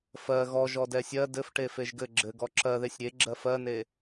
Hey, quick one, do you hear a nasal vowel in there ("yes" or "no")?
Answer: no